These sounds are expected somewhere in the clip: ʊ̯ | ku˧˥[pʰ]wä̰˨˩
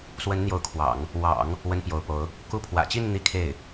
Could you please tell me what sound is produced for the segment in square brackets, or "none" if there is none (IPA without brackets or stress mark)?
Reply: pʰ